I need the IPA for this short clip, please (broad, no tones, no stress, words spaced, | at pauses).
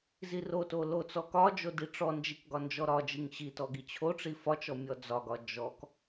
ziroto lot͡sɔkɒd͡ʒo diʈ͡ʂɔnd͡ʒik ɡɒnd͡ʒɔɾɒd͡ʒiŋ ɕitɔ ɡit͡ɕʰoʈ͡ʂi fɒt͡ʃɔ mʲɔd͡zɒɡɒ d͡ʒɔk